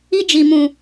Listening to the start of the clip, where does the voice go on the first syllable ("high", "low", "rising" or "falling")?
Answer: high